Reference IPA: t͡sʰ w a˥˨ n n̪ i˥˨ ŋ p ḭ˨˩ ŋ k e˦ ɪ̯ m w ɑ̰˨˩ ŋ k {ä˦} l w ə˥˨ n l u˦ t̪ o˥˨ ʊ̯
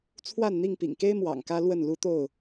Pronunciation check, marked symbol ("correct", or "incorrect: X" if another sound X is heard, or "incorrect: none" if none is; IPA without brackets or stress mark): correct